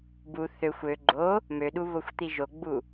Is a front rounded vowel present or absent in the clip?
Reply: present